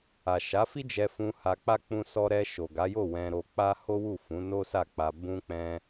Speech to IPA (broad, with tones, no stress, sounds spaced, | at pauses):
a˨ ʃ a˨˦ f i˦ d͡ʒ ɛ˧ f ũ˧ h a˧ k͡p a˦ k͡p ũ˧ s ɔ˧ ɾ ɛ˧ ʃ o˨ ɡ a˨˦ j o˦˨ w ɛ̃˧ ɾ o˧ k͡p a˦ h o˦ w u˦˨ f ũ˨˦ n o˦ s a˦˨ k͡p a˧ b ũ˧ k͡p ɛ̃˧